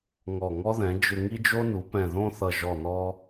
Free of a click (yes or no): yes